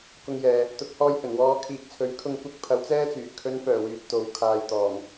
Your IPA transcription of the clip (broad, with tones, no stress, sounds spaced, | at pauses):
k ʊ˧ ŋ j ɛː˨ | t̪ ʊ˨˥ k̚ h ɔː˧ j h ɵ˨˩ n w ɔː˨˧ kʰ iː˨ k̚ t͡sʰ ɵ˨˧ ɥ kʰ ʊ˧ ŋ kʷ ɐ˧ k̚ pʰ ɐ˨˧ w t͡s ɛː˥ t͡s yː˨˩ kʰ ɵ˨˧ n f œː˨˩ w yː˨ t̚ t̪ o˨ w kʰ aː˨ j t̪ ɔː˨˩ ŋ